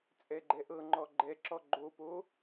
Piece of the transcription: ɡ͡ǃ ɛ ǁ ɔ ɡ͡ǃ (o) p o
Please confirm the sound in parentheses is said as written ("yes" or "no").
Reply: yes